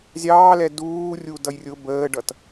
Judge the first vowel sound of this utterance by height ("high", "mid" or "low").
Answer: low